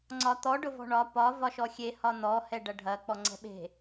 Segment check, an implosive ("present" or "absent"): present